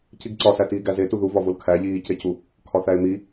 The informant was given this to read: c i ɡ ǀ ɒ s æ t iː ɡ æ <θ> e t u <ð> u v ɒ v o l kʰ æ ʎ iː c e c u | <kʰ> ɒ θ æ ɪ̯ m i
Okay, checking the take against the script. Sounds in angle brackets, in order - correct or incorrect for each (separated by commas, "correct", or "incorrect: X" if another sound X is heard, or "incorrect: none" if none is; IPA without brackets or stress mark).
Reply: incorrect: z, correct, correct